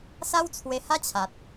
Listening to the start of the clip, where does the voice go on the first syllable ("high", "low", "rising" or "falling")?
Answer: high